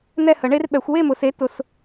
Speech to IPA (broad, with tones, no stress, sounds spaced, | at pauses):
n̪ ɛ˥˧ h ə˨˩˦ ɳ e˦˥ r ɓ ɛ˨˩˦ xʷ w e˥˧ m ʊ˨ s e˨˥ t ʊ˨ s